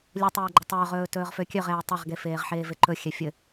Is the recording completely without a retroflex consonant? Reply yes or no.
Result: yes